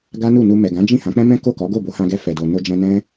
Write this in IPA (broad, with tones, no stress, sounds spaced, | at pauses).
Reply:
ɡ a˦ n u˦˨ n u˧ m ɛ˨ ɡ ã˨˦ d͡ʒ ĩ˦˨ h ã˨˦ k͡p ɛ̃˦ m ɛ̃˦ k o˦˨ k ɔ˨˦ ɡ o˦˨ b o˨˦ h ã˧ ɡ ɛ˧ f ɛ˨ d o˨ n o˧ d͡ʒ ɛ̃˧ n ɛ̃˦